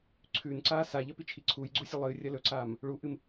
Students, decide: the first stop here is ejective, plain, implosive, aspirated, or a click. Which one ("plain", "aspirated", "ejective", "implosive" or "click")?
click